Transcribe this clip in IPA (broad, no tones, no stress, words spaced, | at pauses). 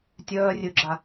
tʲœːrʲøɡ͡ǁa